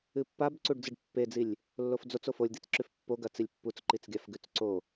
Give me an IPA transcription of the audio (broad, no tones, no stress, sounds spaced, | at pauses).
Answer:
ɨ pː a b ǀ u ɖ d͡z ɨ ɖ pː e d͡z i lʲ | lː o f d͡z o t͡s o f o lʲ d̪ i t͡s ǁ ʉ f pː o ɡ ɐ t͡s i lʲ pː u t͡s ǃ i t͡s ɡʲ a f ɡ ʉ t͡s ǀ o